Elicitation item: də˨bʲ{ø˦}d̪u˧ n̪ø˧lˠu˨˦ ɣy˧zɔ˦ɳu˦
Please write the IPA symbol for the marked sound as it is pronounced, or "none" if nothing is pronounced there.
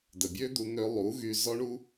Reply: ø˦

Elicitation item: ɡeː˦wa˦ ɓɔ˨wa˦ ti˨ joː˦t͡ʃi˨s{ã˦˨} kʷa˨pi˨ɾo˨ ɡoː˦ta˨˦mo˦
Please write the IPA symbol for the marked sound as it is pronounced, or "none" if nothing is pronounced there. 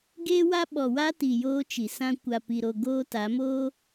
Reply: ã˦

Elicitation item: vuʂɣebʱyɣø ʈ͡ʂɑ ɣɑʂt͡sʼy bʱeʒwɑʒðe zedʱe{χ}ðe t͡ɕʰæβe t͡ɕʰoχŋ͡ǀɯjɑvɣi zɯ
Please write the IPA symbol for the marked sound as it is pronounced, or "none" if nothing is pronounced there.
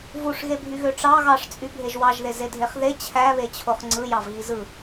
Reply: χ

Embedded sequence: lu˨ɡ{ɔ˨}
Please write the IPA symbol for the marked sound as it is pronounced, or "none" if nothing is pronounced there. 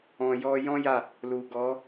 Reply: ɔ˨˦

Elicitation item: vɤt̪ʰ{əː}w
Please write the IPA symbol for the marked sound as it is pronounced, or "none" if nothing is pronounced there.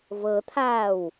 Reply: aː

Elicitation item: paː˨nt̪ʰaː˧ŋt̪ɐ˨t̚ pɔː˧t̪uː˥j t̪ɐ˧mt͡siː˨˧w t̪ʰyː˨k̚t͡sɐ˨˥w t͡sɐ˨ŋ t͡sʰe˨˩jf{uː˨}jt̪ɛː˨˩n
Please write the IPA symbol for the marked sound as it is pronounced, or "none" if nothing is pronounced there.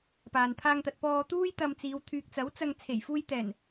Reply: uː˧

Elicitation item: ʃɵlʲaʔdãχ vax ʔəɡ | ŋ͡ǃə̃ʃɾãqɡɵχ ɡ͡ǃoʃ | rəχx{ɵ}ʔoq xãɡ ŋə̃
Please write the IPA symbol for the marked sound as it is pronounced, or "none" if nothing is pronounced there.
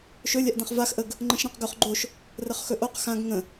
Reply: ɵ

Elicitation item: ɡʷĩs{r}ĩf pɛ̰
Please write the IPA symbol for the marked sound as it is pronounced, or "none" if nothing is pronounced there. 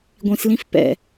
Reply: l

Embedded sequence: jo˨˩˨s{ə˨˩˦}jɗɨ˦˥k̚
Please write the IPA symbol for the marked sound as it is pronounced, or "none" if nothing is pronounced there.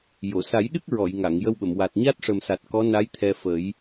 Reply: a˨˩˦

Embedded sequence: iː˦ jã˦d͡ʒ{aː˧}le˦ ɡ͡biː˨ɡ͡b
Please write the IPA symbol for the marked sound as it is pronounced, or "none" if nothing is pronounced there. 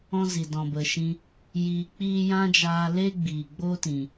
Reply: aː˧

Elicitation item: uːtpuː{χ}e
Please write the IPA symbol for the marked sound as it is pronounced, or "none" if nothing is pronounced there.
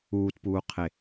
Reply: qʰ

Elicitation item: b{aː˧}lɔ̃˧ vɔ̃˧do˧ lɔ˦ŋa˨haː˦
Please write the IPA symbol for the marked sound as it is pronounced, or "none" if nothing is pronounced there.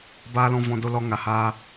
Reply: aː˧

